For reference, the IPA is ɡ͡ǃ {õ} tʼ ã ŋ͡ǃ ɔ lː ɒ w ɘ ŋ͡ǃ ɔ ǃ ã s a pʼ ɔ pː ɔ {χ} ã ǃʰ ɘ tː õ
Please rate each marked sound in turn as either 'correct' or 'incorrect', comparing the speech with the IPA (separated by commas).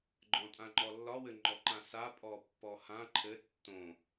incorrect, incorrect